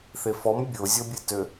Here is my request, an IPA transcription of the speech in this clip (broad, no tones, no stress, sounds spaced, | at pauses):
θ e f ɔ m bʲ o zʲ ɔ bʲ e t ø